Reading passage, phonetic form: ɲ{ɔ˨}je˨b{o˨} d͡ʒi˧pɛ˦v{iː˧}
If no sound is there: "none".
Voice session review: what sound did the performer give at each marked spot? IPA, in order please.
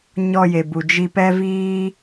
ɔ˧, u˨, iː˦

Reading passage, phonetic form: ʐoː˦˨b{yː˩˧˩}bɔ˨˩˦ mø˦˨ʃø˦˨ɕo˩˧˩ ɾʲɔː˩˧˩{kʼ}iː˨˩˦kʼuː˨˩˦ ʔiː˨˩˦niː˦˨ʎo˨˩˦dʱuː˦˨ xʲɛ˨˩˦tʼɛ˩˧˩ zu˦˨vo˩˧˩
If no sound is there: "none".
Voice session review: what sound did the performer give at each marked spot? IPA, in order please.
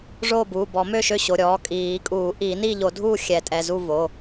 uː˩˧˩, kʼ

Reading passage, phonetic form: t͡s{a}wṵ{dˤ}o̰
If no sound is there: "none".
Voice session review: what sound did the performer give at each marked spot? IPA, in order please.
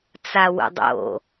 a, dˤ

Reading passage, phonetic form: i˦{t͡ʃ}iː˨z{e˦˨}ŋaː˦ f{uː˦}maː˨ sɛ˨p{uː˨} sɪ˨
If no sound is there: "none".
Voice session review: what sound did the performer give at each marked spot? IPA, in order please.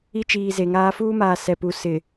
t͡ʃ, e˨, uː˦, u˨

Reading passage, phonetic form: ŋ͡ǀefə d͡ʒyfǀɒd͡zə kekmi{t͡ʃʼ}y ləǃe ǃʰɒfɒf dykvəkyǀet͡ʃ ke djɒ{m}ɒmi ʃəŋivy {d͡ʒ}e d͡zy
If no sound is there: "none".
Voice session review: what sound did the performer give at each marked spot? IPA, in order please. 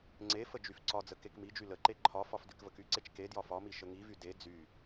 d͡ʒ, f, d

